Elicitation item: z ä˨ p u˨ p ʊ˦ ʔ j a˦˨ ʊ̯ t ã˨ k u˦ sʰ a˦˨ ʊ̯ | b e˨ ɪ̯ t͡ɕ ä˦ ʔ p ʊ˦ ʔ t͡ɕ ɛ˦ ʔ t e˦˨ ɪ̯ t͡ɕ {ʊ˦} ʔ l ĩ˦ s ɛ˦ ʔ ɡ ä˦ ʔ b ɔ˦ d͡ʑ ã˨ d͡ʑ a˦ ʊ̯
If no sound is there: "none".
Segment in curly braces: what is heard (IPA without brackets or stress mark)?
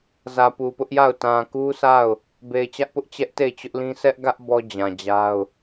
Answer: ʊ˦